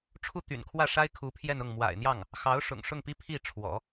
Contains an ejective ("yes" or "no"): no